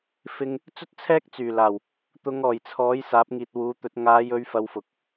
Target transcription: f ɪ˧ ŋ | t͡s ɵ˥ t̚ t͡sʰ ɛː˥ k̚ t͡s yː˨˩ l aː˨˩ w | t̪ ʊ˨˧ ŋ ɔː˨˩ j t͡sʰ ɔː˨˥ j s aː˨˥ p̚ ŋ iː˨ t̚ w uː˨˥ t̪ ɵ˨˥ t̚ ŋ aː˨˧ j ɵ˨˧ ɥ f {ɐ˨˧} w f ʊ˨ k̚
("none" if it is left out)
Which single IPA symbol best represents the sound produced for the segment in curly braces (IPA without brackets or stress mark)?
ɐ˨˧